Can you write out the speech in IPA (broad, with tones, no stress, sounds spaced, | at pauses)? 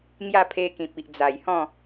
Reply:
ŋ j a˥˧ pʰ e˧ k ĩ˨ p̚ i˨ ʔ d͡z a˨˩ j h ɔ̃˥˧